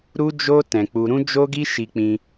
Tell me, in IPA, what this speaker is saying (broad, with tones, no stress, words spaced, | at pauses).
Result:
ɾu˦d͡ʒo˦ tɛ̃˧k͡pu˧ ɾũ˦d͡ʒo˦ɡi˦ ʃi˧k͡pĩ˧